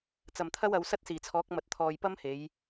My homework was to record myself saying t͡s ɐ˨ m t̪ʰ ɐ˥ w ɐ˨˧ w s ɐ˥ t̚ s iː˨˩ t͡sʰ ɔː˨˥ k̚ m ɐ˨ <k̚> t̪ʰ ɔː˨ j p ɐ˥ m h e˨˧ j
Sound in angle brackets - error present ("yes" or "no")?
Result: yes